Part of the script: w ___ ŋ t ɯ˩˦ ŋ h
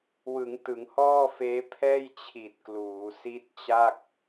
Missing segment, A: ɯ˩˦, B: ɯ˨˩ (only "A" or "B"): A